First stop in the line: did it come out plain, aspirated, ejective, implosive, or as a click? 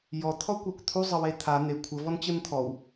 aspirated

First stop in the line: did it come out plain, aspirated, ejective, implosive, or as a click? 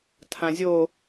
aspirated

